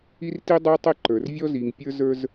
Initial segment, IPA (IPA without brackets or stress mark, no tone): i